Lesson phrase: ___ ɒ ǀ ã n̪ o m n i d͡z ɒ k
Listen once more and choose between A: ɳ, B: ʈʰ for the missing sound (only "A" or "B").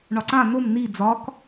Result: A